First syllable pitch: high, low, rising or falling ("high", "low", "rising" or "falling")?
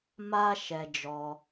high